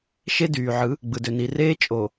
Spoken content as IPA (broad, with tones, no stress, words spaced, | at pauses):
ʃe˦dyː˨ʕɯ˨˦ | ɡ͡bɯ˨dø˨ni˨reː˦ t͡ʃʼo˨